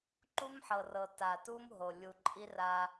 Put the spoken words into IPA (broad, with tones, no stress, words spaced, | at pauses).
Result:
ǃu˦mħɤ˨ rɤ˨ta˨tu˦m ɦo˨ lʲu˨ ǃʼi˦ra˦